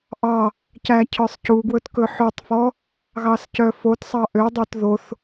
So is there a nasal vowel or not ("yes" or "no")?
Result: no